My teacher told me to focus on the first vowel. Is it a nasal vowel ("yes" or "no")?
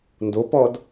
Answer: no